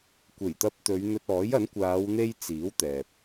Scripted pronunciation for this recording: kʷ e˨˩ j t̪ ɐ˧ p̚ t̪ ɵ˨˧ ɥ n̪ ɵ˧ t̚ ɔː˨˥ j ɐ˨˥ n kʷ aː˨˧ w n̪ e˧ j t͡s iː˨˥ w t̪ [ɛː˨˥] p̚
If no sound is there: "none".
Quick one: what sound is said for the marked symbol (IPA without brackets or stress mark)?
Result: ɛː˨